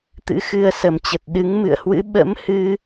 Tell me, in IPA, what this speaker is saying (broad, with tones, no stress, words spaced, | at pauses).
t̪ɨ̰˧˥xɨ˧ə̯ sə˨˩mt͡ɕə˨˩t̚ ɗɨ˨˦ŋ mɨ̰˧˨ə̯hwɨ̰˧˥ ɓə̰˧˥mhɨ˧